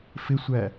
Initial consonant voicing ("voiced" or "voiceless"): voiceless